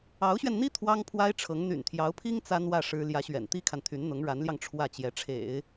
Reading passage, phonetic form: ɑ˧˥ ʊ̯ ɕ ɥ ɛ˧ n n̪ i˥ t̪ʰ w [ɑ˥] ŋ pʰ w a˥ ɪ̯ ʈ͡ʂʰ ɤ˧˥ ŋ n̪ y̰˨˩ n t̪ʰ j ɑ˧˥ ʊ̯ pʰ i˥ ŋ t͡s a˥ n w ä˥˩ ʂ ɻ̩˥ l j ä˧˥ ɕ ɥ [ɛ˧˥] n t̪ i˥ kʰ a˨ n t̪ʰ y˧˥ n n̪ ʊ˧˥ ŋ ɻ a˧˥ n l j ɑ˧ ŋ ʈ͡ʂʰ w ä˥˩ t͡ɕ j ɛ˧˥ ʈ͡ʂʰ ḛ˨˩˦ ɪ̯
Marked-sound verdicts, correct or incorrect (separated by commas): correct, incorrect